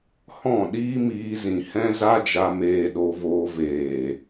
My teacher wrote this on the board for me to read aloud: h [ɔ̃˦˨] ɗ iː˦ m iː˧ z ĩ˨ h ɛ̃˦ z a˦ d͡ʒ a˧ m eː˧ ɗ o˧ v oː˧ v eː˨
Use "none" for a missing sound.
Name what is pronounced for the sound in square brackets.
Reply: ɔ̃˦˨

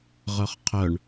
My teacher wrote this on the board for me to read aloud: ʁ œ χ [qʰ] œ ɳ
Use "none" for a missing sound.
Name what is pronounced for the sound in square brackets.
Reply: qʰ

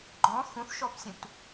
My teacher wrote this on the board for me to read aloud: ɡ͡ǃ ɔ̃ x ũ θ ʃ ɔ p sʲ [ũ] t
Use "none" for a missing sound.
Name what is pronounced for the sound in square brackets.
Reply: ũ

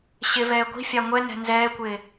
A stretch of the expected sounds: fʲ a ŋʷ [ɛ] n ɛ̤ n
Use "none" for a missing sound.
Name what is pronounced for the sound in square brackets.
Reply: ɛ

